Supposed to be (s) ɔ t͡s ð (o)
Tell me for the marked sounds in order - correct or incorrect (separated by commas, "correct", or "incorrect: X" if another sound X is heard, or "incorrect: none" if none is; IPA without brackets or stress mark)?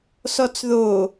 correct, correct